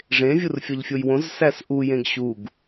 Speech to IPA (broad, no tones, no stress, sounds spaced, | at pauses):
ʐ ẽ vʲ u r fʲ ɒ ʎ fʲ o j w õ z s æ s ʔ u j ẽ ɡ ɕ u ɡ